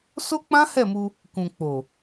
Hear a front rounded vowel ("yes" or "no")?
no